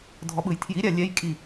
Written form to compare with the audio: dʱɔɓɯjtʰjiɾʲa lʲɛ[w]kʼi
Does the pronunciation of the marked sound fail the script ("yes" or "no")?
yes